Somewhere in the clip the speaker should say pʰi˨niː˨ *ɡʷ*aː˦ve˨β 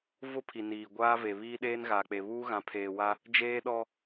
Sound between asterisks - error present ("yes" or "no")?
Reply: no